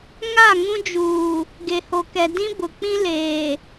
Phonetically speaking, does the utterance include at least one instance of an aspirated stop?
no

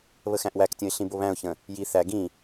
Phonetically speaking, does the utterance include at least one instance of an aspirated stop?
no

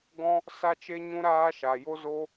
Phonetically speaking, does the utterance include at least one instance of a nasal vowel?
yes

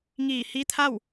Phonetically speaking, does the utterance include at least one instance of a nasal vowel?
no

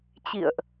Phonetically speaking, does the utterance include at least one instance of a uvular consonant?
no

